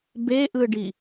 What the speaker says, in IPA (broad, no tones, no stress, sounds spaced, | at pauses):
b e ʔ ɯ ɖ i